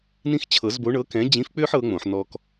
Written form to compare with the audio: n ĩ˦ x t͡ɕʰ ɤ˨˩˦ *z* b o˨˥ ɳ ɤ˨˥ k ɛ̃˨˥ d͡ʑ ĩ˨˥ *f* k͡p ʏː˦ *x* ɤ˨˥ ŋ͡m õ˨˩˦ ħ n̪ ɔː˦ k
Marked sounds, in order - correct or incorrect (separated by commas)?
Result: correct, correct, incorrect